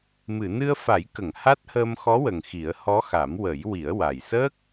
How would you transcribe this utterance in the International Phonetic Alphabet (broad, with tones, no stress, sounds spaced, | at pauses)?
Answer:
m ɨ˨˩˨ n ɨ˧ ə̯ f a˨˩˦ j k ə˨˩˨ ŋ h a˦˥ t̚ h əː˧ m x ɔ˧˥ w ə˨˩ ŋ x i˨˩˦ ə̯ h ɔ˧˥ x a˨˩˦ m w ə˨˩˦ j w i˨˩˦ ə̯ w a˨˩ j s əː˦˥ k̚